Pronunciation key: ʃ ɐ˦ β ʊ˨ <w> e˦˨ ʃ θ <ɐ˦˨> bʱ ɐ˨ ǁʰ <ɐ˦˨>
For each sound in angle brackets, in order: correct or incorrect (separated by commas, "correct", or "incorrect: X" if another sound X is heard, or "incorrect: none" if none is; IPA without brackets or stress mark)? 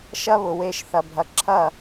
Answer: correct, incorrect: ɐ˨, correct